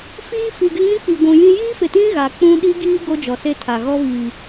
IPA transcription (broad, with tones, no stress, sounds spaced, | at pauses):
f iː˦ f i˨ ɡ ɪ˦ ŋ ĩ˦ k͡p i˨ ɡʷ ũ˨ j ĩ˦ j iː˦ f ɪ˨ t ĩ˦ ɣ a˨ k͡p ũ˦ ɗ i˦ ɡ iː˦ ɡ o˦ d͡ʒ ɔ˨ s e˦ tʰ a˨ ɣ ɔ˦ β i˨